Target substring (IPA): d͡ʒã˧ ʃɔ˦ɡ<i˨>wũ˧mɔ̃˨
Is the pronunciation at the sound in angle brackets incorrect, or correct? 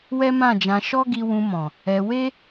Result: incorrect